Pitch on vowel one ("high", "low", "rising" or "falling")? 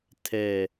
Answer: low